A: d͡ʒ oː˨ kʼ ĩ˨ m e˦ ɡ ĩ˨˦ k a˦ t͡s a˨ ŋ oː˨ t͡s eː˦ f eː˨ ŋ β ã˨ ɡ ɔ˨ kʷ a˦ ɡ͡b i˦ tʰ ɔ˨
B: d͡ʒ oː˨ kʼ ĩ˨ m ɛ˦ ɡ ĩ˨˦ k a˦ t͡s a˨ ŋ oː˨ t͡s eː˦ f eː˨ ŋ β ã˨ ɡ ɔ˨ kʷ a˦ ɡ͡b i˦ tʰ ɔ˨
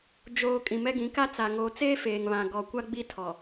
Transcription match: B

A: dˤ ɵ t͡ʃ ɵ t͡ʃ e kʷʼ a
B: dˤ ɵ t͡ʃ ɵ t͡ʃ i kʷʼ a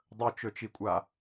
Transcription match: B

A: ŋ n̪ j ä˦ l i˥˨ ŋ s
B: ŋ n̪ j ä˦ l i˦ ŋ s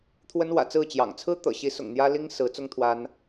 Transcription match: B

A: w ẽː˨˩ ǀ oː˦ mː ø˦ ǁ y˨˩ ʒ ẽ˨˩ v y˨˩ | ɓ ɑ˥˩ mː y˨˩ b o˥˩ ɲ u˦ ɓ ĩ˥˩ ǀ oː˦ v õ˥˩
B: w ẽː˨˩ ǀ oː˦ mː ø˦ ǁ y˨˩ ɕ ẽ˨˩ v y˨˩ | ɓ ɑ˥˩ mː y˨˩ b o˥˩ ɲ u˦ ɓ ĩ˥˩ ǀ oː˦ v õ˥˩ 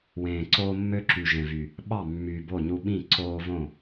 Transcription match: A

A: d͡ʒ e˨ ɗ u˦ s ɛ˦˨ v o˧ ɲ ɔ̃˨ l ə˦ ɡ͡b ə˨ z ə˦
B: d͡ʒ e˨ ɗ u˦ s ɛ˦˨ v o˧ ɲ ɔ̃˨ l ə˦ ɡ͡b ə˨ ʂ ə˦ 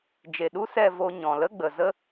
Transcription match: A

